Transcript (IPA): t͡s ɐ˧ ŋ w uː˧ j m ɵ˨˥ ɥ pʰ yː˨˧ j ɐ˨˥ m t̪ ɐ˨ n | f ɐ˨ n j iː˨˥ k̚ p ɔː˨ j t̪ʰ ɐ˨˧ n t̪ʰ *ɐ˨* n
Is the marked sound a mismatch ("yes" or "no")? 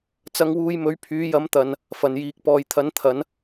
yes